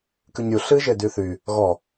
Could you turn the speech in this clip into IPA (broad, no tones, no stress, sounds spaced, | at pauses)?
k ɨ ɲ ɾʲ u ɬ ɨ ʒ e d y θ y | ɣ ɔ